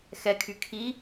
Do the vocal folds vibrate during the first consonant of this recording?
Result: no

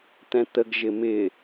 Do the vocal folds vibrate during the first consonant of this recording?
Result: no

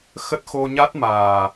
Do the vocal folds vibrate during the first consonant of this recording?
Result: no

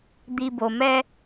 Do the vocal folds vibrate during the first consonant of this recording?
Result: yes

